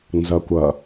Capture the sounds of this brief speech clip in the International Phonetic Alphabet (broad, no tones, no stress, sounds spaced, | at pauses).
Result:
n z ʌ kʷ ʌ